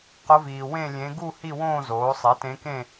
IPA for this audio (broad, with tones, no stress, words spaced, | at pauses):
qʊ˧˥viː˨ wẽ˥˧lʲẽ˧˥ ɡu˥˧ hi˥˧wõː˥˧ zoː˩˥ sˤe˩˥tẽ˧˥kẽ˥˧